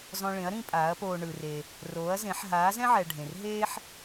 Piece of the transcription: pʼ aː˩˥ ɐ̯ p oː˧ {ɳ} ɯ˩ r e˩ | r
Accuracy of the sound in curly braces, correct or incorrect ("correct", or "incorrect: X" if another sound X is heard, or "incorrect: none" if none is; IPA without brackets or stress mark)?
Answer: correct